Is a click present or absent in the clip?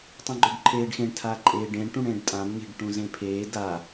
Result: present